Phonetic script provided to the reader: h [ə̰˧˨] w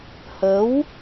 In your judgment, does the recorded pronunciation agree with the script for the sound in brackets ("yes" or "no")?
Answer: no